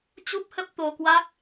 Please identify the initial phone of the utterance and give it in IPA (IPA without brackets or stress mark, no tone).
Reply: t͡ɕ